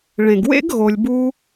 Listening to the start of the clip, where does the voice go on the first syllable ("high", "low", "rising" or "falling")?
low